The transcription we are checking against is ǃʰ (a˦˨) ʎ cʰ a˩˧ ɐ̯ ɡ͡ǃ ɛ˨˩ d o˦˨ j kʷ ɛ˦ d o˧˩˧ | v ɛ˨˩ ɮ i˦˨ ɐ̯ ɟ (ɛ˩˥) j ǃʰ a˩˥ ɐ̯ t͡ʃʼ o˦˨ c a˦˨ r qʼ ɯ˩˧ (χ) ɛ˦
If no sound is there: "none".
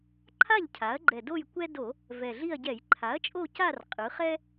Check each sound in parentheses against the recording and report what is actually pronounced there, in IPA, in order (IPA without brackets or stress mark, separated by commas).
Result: a˦˨, ɛ˧˩˧, χ